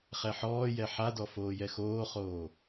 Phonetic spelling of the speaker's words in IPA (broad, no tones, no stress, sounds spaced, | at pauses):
χ ɛ ħ ɔː j ɛ ħ a d ɔ f oː j ɛ x oː χ oː